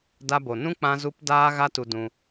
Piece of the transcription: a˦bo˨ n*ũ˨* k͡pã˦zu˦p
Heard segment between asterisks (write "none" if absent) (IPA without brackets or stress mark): ũ˦